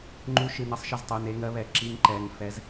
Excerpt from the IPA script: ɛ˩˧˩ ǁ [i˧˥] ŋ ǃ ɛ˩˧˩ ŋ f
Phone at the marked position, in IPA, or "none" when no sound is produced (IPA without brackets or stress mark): i˧˥